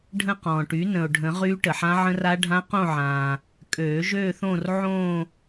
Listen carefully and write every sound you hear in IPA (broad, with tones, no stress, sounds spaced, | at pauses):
ɖʱ ə̃˥˧ q ɔ̃ː˩ ʈ y˩˥ n ə̃˩ o̯ ɖʱ ə̃˨˩˦ ʁ yː˦˥ ʈ ə˩ ħ ã˦˥ ʕ ə̃˦˥ r a˦˥ ɖʱ ã˦˥ q õ˥˧ ʕ ãː˩ | kʼ øː˨˩˦ ʒ øː˥˧ θ õ˥˧ r ʕ õ˥˧